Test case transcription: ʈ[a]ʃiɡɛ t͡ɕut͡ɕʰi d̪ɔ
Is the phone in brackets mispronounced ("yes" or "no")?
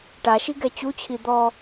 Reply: no